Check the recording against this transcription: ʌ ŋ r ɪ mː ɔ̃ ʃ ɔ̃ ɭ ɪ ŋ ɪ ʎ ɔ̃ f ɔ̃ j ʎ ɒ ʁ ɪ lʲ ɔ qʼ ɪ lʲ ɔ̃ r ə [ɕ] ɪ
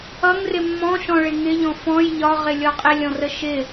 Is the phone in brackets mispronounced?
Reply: yes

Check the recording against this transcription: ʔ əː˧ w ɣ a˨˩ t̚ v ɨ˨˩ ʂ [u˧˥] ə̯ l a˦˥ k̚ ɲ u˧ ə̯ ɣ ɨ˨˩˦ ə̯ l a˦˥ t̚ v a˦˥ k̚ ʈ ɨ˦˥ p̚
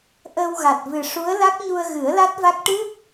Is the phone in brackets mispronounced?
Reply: no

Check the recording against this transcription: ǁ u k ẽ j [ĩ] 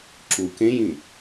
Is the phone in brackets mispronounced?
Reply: no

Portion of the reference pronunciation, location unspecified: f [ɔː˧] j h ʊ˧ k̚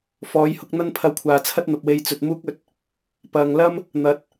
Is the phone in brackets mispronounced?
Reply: yes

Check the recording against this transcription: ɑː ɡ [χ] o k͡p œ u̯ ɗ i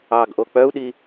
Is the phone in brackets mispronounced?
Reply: yes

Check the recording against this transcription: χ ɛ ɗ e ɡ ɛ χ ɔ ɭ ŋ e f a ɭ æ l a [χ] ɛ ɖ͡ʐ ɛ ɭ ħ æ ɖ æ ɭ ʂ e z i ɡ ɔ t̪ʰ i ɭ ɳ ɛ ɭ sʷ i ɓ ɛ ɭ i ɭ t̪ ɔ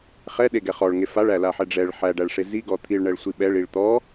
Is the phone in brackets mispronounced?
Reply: yes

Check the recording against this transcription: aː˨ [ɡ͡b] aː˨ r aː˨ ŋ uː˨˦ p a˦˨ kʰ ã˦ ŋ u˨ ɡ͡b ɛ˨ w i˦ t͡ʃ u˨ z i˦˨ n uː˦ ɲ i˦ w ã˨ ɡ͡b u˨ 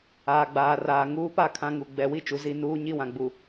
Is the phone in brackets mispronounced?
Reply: no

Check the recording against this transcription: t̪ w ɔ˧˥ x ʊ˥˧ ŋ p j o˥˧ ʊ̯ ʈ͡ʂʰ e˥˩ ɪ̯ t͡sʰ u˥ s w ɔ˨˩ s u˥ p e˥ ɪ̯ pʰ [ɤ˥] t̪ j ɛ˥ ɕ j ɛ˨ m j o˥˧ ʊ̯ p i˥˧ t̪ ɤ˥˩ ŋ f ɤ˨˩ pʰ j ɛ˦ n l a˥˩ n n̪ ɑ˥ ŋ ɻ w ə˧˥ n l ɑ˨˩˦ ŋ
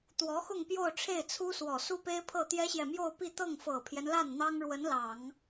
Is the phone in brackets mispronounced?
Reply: yes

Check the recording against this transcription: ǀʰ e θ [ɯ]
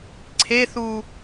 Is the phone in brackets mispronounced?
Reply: yes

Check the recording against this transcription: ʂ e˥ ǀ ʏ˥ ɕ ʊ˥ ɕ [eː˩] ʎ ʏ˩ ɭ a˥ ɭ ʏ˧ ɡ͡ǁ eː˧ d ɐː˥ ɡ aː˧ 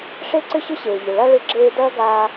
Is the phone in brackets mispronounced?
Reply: no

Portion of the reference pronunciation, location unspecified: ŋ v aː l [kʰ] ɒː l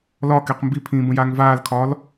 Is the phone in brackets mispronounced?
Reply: no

